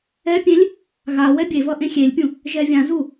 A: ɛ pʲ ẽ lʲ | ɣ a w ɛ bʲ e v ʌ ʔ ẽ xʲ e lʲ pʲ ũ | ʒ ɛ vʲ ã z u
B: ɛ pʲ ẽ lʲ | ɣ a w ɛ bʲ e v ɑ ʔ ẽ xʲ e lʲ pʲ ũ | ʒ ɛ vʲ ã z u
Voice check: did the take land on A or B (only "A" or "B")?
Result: A